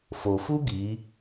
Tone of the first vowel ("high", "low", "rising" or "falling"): low